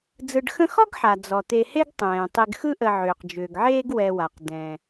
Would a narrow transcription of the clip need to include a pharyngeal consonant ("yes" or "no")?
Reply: yes